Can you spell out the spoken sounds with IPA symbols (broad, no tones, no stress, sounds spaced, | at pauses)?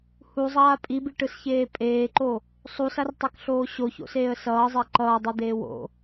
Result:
h u zˤ aː pʼ i b i ʈ ɯ s ç eː pʼ eː ǃ o | sˤ u s a r tˤ ɛ k ɬ oː ɕ o ç o̰ s eː ə̯ s ʌː zˤ ɛ ǃ ʌː dˤ ɛ d̪ eː w o̰